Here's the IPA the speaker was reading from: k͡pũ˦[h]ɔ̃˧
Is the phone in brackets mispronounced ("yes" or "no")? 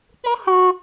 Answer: no